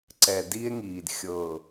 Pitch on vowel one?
low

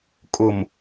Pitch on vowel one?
low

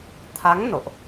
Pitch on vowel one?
rising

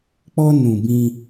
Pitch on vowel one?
high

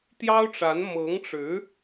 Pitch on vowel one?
high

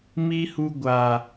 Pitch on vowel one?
high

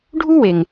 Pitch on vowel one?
high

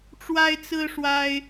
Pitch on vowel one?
high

